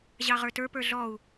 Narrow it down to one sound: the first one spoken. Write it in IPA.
ʑ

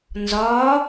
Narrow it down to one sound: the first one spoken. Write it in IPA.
n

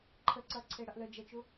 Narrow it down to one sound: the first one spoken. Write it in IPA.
ǃʰ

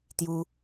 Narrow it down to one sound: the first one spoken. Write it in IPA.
t̪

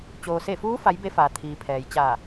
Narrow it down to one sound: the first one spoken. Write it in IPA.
t͡ɕ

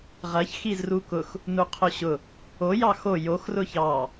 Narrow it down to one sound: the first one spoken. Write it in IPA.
ʁ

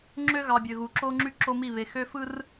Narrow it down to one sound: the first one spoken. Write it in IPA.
ŋ͡ǁ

